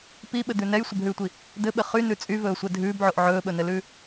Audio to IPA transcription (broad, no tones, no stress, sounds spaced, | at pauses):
p i ɓ ɘ d̪ ʉ n ɛ j sʷ ɘ b ɦ ʉː tʷ i | d̪ ɘ ɓ ɘ χ y n ʉ t͡sʼ y v ɵː sʷ ɛ dʱ ʉː b ʕ o ʔ ʕ ɵː ɓ ɵ n ɘ l ʉː